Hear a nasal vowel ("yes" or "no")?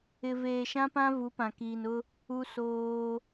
yes